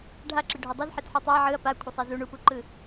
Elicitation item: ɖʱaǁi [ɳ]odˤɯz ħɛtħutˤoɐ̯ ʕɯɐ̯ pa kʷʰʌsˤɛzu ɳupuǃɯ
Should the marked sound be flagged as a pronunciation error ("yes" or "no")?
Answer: yes